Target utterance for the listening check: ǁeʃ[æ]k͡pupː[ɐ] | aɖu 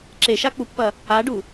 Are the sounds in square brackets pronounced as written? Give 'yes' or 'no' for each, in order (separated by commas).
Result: no, yes